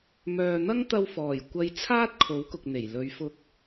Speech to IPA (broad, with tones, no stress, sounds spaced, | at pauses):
m œː˨ n̪ ɐ˥ ŋ t̪ ɐ˧ w f ɔː˨˩ j kʷ ɐ˧ j t͡sʰ aː˥ t̚ kʰ o˨˥ w k ʊ˨ k̚ n̪ e˨˩ j l ɵ˨˧ ɥ f ʊ˧ k̚